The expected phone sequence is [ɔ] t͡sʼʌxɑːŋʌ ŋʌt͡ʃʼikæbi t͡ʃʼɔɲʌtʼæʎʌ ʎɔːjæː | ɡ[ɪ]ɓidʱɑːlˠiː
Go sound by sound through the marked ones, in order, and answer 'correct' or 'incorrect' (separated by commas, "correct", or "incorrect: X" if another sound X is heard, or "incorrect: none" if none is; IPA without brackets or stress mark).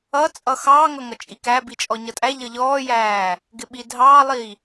incorrect: ʌ, correct